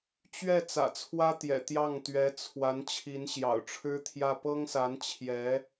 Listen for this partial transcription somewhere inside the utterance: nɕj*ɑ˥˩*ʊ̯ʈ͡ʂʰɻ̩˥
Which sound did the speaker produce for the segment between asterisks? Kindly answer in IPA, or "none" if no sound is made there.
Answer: ɑ̰˨˩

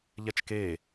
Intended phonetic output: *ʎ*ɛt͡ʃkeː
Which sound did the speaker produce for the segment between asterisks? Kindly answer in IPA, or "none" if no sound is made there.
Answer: ʎ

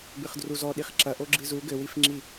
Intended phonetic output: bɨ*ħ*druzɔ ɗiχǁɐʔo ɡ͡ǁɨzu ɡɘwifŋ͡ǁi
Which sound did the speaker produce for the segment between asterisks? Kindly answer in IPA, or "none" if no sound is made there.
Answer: χ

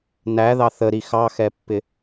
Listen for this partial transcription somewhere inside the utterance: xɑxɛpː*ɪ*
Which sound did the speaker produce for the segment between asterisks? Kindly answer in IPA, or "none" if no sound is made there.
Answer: ɪ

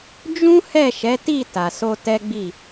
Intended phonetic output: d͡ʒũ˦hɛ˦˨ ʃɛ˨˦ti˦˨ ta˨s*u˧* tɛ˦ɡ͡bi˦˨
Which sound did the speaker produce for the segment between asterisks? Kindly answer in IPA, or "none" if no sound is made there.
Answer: o˧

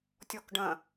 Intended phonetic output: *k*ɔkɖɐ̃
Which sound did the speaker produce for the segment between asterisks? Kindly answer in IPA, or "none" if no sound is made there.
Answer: tʲ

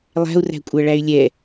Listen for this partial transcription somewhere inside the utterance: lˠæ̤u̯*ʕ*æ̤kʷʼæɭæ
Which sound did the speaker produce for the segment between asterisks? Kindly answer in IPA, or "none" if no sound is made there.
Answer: r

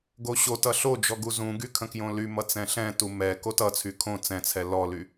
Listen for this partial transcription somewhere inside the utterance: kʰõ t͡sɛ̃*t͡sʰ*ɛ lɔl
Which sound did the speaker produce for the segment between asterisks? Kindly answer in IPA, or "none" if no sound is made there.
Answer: t͡sʰ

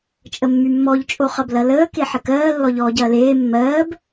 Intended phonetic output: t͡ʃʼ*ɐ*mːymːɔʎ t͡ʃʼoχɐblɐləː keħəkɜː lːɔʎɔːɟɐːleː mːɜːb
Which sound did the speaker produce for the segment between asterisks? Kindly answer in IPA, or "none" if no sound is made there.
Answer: ə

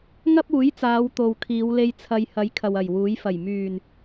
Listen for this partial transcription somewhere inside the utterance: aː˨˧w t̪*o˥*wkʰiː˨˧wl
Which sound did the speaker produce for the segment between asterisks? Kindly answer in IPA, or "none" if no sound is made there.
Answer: o˨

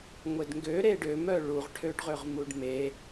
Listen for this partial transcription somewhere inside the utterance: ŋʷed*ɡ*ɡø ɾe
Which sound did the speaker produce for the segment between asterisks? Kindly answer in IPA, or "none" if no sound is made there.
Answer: ŋ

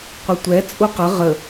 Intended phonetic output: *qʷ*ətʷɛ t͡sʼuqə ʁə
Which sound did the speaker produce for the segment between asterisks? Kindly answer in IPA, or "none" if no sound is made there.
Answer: qʷ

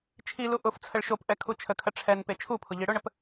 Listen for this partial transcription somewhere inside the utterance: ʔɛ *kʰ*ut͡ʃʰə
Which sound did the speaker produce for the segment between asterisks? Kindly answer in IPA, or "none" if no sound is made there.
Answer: kʰ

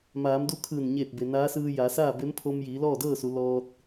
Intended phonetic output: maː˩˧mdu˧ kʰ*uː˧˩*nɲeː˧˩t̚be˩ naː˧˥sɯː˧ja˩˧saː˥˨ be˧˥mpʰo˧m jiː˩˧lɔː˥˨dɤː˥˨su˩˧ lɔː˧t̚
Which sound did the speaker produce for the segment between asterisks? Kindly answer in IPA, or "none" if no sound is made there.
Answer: ɯː˧˩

